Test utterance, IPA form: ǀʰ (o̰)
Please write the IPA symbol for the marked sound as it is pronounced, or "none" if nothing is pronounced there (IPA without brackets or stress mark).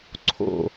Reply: o̰